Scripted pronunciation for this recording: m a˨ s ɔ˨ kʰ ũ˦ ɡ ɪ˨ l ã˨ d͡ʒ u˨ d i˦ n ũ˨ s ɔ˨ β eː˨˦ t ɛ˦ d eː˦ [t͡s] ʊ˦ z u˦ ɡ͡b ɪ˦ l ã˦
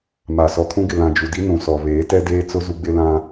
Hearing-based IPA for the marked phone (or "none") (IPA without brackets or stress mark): t͡s